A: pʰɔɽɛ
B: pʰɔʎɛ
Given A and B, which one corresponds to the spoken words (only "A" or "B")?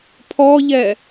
B